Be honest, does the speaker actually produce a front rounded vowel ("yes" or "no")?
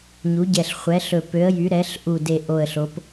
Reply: yes